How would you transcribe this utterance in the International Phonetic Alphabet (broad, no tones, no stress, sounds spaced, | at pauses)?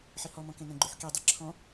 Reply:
ħ i h ɔ m ɔ̃ k ẽ n ə̃ ɡ͡ǃ ʉ ħ k i dˤ e ǁʰ ɔ̃